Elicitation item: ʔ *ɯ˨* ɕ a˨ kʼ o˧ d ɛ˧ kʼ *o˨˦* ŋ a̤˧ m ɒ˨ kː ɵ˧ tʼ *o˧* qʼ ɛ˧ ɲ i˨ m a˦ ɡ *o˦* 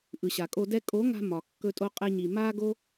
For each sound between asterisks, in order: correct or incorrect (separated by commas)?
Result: correct, correct, correct, correct